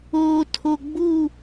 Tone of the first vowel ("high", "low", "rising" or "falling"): low